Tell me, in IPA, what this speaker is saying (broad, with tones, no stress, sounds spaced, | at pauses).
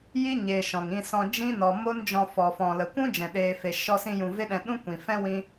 j i˦ ɲ eː˨ ʃ ɔ̃˨ ŋ ĩ˧ s ɔ̃˧ d͡ʒ ĩ˦ n ɔ˨ m o˦ n d͡ʒ ɔ̃˧ f ɔ˨ f ɔ̃˨ l ə˨ kʷ ũ˦ d͡ʒ ɛ̃˨ ɗ eː˧ f e˧ ʃ ɔ˧ s ĩ˧ j ũ˨ v e˦ ɗ ɛ̃˧ ɗ ũ˦ kʷ ĩ˨ f ɛ̃˦ w ĩ˦